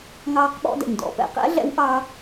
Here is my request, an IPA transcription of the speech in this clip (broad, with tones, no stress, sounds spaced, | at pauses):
ŋ ɑː˧ q ɓ ɔ̰˧ d ɛ̰˩ ɲ d ɔ̰˩˧ p ɛ̰˩ q ɛ̰˧˥ ɮ ɛ̰˧˥ w ʔ ɑ˧